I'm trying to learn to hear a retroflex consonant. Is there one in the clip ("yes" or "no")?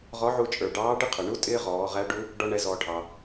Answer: yes